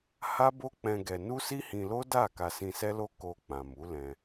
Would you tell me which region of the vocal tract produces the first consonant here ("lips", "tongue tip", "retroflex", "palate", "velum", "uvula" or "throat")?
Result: throat